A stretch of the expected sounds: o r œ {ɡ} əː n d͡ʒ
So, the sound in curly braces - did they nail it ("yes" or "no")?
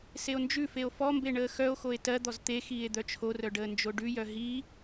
no